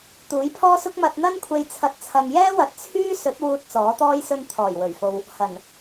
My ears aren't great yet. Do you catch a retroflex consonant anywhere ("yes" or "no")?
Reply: no